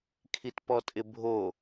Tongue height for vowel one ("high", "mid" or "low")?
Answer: high